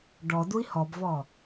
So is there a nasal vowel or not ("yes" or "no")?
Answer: no